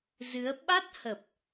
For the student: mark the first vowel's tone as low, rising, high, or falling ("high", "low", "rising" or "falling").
rising